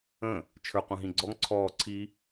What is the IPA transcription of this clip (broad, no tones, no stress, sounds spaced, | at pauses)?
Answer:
ə̃ | t͡ʃʰ ə˞ qʷ ə̃ː ɦ ĩ ɡ͡ǀ ɔ ŋ ǀʰ ɔː ǀʰ i